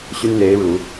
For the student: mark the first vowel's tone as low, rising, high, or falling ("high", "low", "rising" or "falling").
high